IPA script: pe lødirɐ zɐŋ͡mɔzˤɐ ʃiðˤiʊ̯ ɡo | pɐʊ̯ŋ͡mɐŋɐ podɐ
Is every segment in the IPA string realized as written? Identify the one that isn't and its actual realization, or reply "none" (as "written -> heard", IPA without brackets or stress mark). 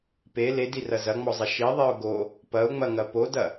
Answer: ø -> e